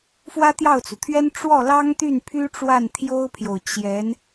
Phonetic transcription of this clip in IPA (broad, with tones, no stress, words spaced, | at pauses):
fwä˥t̪jɑ˥˩ʊ̯t͡su˩t̪ʰɥɛ˥n ʈ͡ʂwɔ˥˩lɑ˥ŋt̪y˥˩n pʰy˥ʈ͡ʂwa˥˩n t̪ʰjo˥ʊ̯pʰjo˨ʊ̯ t͡ɕjɛ˧˥n